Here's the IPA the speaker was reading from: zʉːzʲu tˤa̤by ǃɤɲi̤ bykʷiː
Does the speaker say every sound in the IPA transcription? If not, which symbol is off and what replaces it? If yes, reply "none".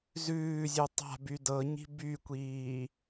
ǃ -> d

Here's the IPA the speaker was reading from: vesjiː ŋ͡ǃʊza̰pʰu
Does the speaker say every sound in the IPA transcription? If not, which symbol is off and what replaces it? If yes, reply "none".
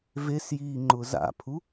none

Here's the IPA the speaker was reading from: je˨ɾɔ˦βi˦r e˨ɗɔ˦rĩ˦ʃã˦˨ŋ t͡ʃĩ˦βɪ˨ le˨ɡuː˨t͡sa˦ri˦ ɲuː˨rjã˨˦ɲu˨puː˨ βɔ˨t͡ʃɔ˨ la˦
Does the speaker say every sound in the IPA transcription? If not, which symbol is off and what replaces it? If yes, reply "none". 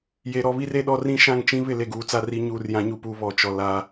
none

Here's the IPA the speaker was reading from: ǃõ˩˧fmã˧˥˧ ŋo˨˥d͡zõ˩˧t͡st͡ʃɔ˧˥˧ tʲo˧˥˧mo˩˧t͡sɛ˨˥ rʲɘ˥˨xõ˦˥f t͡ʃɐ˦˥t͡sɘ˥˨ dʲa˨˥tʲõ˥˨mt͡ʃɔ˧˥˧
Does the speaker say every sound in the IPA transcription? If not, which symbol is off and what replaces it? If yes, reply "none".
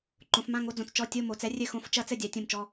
none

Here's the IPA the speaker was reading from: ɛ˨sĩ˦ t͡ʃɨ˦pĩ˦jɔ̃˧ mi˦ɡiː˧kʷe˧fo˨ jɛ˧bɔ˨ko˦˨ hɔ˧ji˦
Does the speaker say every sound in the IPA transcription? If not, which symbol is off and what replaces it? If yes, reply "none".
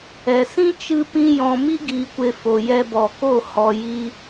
none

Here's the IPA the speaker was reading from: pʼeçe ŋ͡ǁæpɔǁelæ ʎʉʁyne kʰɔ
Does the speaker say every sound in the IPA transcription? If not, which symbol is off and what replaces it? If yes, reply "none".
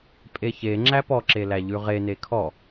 y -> e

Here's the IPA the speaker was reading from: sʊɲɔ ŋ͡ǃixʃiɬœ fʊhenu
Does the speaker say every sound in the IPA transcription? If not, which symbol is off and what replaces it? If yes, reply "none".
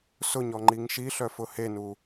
x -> ŋ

